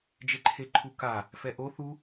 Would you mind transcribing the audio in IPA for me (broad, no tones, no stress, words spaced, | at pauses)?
d͡ʒeǃʰeǃʰuka | fɛʔo θu